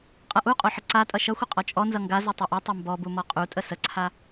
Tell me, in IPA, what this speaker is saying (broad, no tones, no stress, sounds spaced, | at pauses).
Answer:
qʼ ʌ ʔ u qʼ o ħ ə ǀ a tʼ ʌ ʃ ʌ xʷ ə qʼ ɔ t͡ʃʼ ɔ n z ʌ ŋ ɡ a z u tˤ ʌ ʔ ʌ tˤ o m b ɔ b u m ɔ qʼ u tʼ ə s ə ǀʰ a